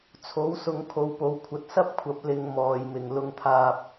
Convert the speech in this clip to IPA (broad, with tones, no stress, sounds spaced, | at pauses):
t͡sʰ o˨˥ w s ʊ˨˧ ŋ kʰ o˧ w p o˨˧ w kʷʰ ɐ˧ t̚ s ɐ˥ p̚ kʷʰ ɐ˨˥ p̚ l ɪ˧ ŋ m ɔː˨˩ j m ɪ˨˩ ŋ l ʊ˨ ŋ t̪ʰ aː˨ p̚